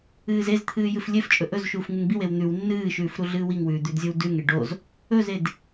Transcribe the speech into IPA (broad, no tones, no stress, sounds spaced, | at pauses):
ɨː z e z t̪ʰ ɨː j ɨ f lʲ e f t͡ʃʼ ɵ ʔ ɵ z ʃ uː f ŋ ɨ ŋ b i w e w n̪ ʉ w nː ɨː ʃ ʉː f ɾ u ɮ ɨː w i ŋ w ʉː d̪ ʉ d zʲ o w d ʉ ŋ e ɖ o z | ɵ z e d